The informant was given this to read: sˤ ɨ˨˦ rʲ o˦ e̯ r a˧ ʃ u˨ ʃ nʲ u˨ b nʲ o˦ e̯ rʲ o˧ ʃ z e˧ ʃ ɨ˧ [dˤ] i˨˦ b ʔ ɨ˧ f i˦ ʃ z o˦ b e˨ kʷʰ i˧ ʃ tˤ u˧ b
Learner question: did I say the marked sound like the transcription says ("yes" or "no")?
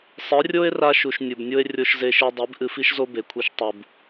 yes